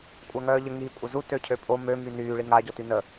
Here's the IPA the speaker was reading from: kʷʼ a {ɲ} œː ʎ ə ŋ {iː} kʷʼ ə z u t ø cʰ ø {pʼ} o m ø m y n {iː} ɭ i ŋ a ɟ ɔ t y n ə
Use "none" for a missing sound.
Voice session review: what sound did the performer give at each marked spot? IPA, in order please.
ŋ, iː, pʼ, yː

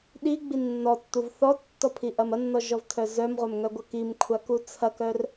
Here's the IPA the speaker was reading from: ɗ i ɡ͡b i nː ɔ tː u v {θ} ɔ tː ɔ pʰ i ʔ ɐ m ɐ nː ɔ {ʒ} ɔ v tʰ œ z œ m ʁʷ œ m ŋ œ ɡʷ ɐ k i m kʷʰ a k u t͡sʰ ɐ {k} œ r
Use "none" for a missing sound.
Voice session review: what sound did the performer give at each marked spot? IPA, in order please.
θ, ʒ, k

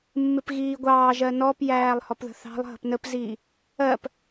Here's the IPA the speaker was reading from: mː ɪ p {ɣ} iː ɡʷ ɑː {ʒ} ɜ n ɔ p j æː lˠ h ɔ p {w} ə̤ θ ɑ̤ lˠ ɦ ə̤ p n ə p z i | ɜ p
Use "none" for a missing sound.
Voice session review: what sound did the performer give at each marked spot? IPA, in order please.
ɣ, ʒ, ð

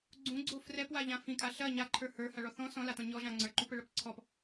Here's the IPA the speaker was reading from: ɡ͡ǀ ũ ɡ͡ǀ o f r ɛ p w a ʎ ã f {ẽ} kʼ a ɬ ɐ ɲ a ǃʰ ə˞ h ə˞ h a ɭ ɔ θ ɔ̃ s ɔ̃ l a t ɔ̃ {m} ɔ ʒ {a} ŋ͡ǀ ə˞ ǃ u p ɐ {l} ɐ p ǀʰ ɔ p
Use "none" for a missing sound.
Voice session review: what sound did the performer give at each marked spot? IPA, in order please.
ĩ, ɲ, ã, ɭ

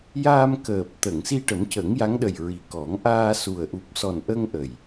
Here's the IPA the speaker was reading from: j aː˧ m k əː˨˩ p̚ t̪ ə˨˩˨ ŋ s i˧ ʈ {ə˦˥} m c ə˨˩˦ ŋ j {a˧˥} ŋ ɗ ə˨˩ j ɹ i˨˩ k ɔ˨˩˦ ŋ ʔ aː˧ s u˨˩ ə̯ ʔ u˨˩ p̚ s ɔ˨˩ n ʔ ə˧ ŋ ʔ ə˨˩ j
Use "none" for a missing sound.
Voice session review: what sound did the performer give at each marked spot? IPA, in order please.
ə˨˩˦, a˧˥

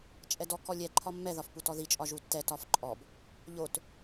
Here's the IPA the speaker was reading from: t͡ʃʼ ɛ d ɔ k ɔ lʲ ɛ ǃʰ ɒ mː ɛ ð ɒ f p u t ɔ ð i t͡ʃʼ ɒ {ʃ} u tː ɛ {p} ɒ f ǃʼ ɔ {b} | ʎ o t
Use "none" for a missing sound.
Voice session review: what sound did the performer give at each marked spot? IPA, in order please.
ʒ, t, b

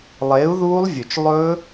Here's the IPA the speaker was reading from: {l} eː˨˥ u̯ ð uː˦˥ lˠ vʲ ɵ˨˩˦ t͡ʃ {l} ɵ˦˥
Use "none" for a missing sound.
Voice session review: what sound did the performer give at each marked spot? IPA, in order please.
lˠ, lˠ

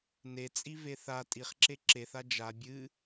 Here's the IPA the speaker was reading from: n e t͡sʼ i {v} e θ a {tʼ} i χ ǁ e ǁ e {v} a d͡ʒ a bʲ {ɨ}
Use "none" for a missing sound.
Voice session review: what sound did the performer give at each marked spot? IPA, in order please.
v, tʼ, θ, ɨ

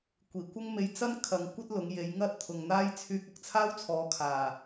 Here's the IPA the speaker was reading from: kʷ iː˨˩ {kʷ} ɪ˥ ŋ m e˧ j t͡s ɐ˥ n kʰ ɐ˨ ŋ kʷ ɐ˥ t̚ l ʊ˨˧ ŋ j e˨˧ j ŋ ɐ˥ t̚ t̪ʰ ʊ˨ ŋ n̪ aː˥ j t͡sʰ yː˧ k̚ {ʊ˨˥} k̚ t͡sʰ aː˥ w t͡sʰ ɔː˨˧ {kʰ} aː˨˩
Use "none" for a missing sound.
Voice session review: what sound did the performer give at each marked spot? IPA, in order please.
kʷ, ʊ˨, kʰ

